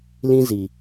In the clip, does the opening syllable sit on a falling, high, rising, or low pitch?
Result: high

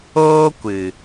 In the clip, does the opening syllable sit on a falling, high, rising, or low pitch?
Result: high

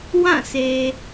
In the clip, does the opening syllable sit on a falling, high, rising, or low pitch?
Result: falling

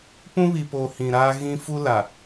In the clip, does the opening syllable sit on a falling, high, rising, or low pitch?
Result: high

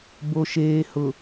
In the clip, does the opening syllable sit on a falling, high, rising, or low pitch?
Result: low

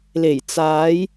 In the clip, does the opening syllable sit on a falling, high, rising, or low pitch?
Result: low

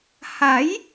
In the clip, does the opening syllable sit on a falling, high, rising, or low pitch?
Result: rising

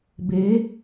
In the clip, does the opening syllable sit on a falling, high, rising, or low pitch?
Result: rising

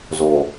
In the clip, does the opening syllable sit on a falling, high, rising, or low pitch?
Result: low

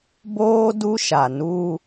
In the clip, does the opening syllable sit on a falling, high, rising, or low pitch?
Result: high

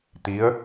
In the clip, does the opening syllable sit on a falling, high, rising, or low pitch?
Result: rising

